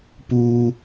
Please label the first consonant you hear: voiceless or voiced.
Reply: voiceless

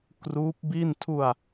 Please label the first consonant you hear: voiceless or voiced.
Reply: voiceless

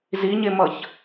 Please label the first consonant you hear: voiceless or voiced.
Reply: voiced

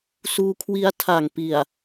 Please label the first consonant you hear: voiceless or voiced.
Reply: voiceless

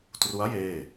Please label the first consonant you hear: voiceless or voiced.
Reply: voiceless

